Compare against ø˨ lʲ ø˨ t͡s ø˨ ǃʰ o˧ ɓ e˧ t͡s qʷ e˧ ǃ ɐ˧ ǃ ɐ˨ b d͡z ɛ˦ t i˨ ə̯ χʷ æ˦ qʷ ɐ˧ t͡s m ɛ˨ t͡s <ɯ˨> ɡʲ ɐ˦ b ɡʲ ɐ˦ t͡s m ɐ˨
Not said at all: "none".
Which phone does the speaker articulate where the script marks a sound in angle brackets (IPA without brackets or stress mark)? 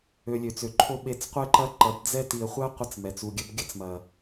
u˨